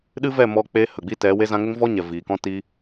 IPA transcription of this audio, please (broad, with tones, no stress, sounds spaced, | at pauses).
ɗ ɨ˦ v ɛ˦˨ m ɔ˧ k͡p e˦ h ə˨ ɡ͡b i˦ t ɛ˨˦ w e˦ z ã˧ ŋ ə˦ ŋ v ɔ˦ ɲ ɛ˨ v iː˨ k ɔ̃˦ t i˦